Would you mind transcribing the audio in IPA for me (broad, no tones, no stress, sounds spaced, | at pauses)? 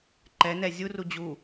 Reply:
ǃ ɛ n ɛ zʲ u r u d͡ʑ u